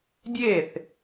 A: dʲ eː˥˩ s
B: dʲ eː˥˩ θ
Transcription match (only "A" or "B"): B